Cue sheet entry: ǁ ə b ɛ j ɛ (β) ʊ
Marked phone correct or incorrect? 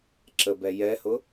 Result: incorrect